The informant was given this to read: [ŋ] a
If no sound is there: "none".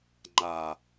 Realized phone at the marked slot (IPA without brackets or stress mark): ŋ͡ǃ